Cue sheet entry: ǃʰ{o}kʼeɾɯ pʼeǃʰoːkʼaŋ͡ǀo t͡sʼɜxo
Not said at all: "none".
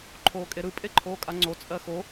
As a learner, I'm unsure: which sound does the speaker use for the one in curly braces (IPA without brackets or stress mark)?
oː